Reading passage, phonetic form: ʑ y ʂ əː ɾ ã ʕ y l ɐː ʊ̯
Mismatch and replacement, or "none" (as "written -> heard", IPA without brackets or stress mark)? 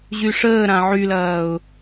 none